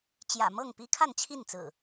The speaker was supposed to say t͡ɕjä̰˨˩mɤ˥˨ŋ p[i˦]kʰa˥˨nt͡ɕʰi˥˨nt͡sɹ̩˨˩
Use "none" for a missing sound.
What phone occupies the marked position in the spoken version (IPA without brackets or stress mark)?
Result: i˦